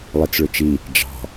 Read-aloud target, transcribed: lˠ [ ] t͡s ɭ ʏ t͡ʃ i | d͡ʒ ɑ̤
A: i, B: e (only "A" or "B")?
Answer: A